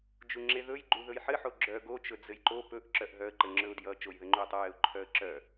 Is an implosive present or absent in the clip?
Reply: absent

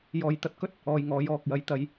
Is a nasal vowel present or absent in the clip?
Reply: absent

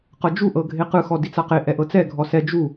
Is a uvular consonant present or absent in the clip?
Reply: present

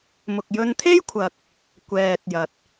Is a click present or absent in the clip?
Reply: absent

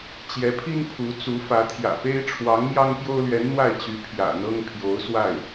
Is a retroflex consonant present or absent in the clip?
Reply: present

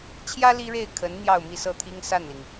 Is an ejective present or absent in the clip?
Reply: absent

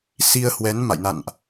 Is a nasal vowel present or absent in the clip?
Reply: absent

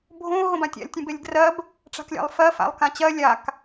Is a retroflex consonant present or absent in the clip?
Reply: present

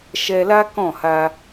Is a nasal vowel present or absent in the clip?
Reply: present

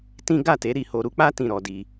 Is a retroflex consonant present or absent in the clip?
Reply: absent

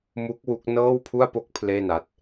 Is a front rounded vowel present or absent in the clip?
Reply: absent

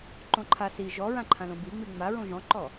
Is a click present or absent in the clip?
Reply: present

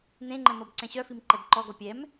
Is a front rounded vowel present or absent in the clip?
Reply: present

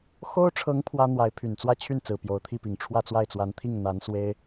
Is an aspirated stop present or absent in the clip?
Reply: present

